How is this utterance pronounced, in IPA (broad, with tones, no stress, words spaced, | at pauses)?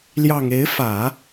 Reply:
ljɑ˨˩ŋ e˧˥ɪ̯fä˨˩˦